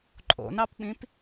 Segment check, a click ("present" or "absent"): present